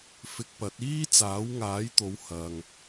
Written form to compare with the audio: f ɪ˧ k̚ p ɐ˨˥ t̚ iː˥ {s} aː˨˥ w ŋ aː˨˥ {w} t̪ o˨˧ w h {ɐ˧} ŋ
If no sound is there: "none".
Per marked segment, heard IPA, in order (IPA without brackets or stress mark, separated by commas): t͡s, j, ɐ˧